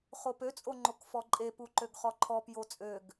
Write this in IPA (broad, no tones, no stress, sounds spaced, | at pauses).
χ o p ø t͡sʼ o ŋ͡ǃ o k f ɔ ǃʼ e p u ǃ ø ɡ χ ɔ ǃʰ ɔ p j o t͡sʼ ø ɡ